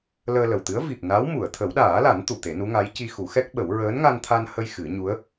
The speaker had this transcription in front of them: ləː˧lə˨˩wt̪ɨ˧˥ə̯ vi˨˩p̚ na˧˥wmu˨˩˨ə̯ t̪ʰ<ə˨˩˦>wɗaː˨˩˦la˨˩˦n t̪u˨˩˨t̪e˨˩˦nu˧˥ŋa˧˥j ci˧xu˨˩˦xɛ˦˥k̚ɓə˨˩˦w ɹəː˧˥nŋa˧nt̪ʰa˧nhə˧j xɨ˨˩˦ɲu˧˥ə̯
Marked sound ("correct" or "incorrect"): correct